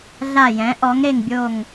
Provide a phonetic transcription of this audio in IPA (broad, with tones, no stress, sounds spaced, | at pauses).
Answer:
ɮ a˦˨ j ɛ̃˨˥ ʔ ɔ˨˥ ŋ ɾ e˦˨ ŋ bʲ o˦˨ ŋ